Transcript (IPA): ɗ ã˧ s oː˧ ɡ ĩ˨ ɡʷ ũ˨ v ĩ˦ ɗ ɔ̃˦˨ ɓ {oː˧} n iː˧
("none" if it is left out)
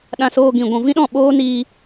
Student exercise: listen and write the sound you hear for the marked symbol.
oː˦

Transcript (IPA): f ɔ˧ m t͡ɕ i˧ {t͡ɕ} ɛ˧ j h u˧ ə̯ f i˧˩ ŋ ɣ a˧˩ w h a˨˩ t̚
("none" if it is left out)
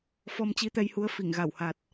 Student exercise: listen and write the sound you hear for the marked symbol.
t̪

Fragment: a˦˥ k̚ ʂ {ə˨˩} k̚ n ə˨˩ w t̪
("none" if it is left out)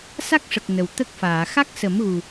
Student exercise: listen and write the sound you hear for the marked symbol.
ə˨˩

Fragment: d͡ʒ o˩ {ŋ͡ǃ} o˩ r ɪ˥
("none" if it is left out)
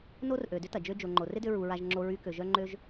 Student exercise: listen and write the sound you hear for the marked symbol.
ŋ͡ǃ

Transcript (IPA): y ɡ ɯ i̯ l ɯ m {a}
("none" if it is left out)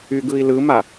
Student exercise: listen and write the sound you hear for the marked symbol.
a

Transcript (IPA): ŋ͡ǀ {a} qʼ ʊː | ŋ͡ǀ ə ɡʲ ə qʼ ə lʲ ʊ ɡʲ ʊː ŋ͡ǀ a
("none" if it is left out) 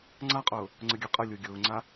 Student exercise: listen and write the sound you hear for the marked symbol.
a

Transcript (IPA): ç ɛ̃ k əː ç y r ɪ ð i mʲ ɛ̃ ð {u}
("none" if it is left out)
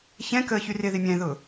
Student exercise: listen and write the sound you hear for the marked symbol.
ʊ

